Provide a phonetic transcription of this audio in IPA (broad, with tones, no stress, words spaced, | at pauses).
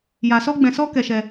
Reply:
ja˧ sɔ˦ɡ͡bɛ̃˧sɔ˦ kɛ˧ʃɛ˧